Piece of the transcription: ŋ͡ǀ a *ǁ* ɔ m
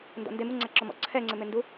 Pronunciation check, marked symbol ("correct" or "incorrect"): correct